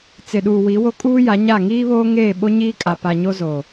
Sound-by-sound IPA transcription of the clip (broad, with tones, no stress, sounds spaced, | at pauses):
t͡s ɪ˨ ɗ uː˨ w i˨˦ w o˦ kʼ uː˦ j a˨˦ ɲ a˦˨ ŋ iː˦ β oː˦ ŋ eː˦˨ ɓ o˦ ɲ iː˦ kʼ a˨ p a˨ ɲ o˦ z o˨